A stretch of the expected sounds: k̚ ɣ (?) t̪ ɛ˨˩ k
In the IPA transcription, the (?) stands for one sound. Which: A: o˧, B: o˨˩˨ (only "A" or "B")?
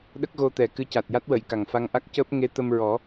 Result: A